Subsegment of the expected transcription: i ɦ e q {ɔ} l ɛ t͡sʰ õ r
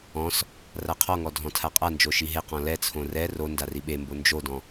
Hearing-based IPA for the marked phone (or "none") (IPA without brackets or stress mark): ɔ̃